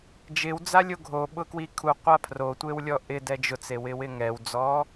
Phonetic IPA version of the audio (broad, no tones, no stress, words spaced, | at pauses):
d͡ʒɪwd͡zalʲo ɡʱoɓʊkwi kʰuqʷa pʰrotʷewlʲɔ ʔɪdɛ d͡ʒʊt͡sewɪwɪ ŋɛwd͡zɔ